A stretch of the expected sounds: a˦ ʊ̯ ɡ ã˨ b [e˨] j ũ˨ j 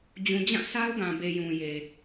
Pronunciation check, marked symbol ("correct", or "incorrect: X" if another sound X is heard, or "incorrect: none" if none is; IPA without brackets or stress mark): correct